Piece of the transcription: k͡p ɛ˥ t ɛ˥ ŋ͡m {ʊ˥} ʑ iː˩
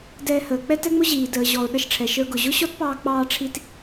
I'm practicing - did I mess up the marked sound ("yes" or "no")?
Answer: no